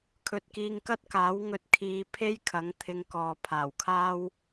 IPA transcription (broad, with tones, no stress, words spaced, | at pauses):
kʰɵ˨t̚kiː˧ŋkɐ˥t̚ kaː˨˥wŋɵ˧t̚ kʰiː˧ pʰe˥jkʰɐ˨˥ŋ t̪ʰɪ˧ŋkɔː˨pʰaː˨˩wkʰaː˥w